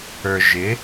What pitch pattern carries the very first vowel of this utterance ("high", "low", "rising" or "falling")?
low